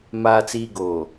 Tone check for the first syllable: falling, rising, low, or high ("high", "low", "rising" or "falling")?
low